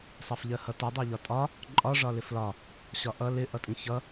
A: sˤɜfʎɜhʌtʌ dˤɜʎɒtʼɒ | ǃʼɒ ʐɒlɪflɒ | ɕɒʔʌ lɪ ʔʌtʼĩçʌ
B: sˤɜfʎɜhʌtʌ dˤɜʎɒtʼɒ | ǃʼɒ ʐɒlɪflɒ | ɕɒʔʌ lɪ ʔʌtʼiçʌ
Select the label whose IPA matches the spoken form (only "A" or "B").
A